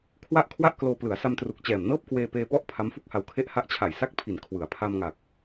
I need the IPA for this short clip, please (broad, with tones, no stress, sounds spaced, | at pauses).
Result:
kʰ w a˥˩ ʔ kʰ w a˥˩ ʔ k l oː˧ p l ɯ˩˦ a̯ s a˧ m t r u˨˩ k̚ t͡ɕ ɛː˨˩ m n ɤː˥˩ p̚ k w eː˧ p eː˧ p ɔ˥˩ ʔ pʰ a˦˥ m f u˥˩ k̚ h a˧ w kʰ e˥˩ ʔ h a˦˥ ʔ t͡ɕʰ a˨˩ j s a˥˩ k̚ pʰ i˨˩ n kʰ w ɯ˩˦ a̯ pʰ a˧ m ŋ a˨˩ k̚